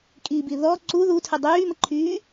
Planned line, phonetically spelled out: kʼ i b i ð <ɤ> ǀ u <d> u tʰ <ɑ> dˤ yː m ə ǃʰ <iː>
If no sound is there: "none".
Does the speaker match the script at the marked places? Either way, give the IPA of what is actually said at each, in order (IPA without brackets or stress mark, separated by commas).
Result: ɔ, ð, ə, yː